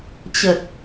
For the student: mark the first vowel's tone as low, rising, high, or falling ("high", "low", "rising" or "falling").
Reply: low